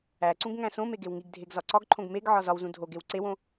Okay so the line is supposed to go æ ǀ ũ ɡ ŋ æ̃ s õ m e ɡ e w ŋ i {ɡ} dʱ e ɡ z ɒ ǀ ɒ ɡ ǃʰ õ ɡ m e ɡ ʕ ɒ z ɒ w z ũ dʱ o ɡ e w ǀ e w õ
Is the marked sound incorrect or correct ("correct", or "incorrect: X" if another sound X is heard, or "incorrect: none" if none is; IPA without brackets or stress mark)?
correct